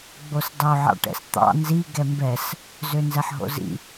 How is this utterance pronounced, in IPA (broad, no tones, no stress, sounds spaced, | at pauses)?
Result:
ɡ͡b o s dˤ o ʕ ɑ̰ ʈ ɛ̰ s t̪ ɑ̰ n z i ɡ ɛ m b ɛ s | z ø n z ɛ ħ ɦ o̰ z ḭ